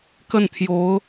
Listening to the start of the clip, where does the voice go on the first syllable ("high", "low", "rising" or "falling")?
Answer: falling